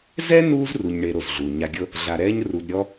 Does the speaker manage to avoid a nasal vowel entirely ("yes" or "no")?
yes